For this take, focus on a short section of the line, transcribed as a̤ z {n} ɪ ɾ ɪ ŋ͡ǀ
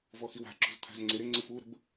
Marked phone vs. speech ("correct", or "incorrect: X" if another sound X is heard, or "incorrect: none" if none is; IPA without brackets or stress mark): incorrect: ŋ͡ǀ